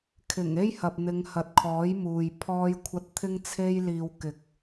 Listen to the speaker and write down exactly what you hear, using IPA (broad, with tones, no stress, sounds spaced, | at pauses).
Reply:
kʰ ɪ˨˩ ŋ e˥ j h ɐ˨ p̚ n̪ ɪ˨˧ ŋ h ɐ˨ t̚ kʰ ɔː˨˥ j m uː˨ j pʰ ɔː˧ j kʷʰ ɐ˧ t̚ t̪ʰ ɪ˥ ŋ t͡sʰ e˥ j l iː˧ w k ɪ˨˥ k̚